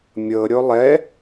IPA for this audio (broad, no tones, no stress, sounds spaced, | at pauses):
mʲ ɤ ɾʲ o lˠ ɛ